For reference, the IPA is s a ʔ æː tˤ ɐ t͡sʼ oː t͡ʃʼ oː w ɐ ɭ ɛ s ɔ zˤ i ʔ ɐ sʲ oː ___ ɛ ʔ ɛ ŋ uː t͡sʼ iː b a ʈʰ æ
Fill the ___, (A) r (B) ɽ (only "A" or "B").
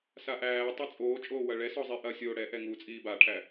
B